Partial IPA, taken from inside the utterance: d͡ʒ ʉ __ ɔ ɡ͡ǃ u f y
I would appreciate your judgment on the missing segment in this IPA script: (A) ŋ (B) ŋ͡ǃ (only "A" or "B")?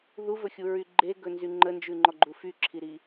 B